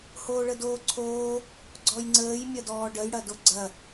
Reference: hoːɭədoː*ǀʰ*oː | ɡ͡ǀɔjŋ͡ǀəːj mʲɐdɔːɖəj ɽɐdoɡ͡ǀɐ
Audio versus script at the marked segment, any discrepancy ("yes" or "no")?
no